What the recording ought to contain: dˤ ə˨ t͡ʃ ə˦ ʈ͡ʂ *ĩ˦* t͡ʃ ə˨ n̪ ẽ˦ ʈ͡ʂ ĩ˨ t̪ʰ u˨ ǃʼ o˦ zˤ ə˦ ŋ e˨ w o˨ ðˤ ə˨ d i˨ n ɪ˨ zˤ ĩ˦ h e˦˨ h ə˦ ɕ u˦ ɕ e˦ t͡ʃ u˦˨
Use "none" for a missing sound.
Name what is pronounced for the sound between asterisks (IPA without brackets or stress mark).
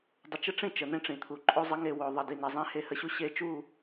ĩ˦˨